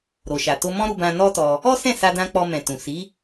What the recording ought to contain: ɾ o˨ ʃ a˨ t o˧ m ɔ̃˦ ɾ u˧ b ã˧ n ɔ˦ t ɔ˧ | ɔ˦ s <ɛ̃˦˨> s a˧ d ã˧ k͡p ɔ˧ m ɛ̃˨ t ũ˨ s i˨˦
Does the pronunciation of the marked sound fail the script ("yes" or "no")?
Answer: no